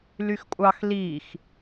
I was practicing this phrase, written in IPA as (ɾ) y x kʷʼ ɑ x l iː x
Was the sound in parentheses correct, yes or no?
no